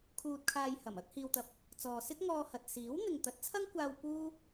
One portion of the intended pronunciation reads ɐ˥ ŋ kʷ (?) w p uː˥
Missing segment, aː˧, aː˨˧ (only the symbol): aː˧